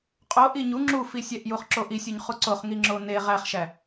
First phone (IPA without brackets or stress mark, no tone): qʼ